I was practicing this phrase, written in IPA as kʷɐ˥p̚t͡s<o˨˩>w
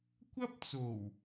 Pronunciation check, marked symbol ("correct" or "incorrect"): correct